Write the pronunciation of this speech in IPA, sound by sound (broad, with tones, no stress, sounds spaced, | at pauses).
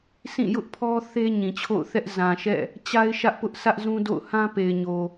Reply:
sʰ ĩ˦˨ j ʊ˦ ʔ pʰ ɔ˦ θ e˦ ɲ ĩ˨ t͡ɕʰ o̰˦˨ ʊ̯ θ ɛ˦ ʔ z ã˨ ʃ ɛ̰˦˨ | t͡ɕ a˦ ɪ̯ ʃ ä˦ ʔ p ʊ˦ ʔ sʰ ä˦ ʔ z ũ˦ d o̰˦˨ ʊ̯ h ã˦ p e˨ ɪ̯ ɲ o˨